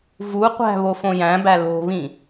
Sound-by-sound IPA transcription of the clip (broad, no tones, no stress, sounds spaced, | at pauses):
v u qʷ æ̤ β o f õ j æ̃ b æ l o̤ β ĩ